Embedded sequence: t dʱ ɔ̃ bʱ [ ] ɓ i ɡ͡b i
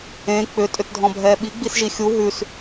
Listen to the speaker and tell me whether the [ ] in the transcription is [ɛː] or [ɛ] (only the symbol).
ɛː